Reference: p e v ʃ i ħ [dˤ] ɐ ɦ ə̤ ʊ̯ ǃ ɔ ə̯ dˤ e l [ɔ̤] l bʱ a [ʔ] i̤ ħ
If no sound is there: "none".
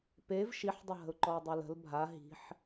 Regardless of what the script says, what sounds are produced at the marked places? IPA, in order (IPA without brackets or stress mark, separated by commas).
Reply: dˤ, ə̤, ɦ